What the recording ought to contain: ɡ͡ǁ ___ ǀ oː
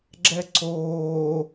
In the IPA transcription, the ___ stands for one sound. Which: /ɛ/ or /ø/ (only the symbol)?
ɛ